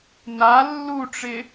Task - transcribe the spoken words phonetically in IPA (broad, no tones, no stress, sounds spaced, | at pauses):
n a lː u ʈ͡ʂ ɪ